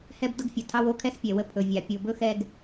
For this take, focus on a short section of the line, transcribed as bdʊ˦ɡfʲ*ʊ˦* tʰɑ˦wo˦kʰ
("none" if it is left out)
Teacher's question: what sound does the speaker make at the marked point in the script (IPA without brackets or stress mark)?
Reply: ʊ˨